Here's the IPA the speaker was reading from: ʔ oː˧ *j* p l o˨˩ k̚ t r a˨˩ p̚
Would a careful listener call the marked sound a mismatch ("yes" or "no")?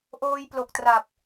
no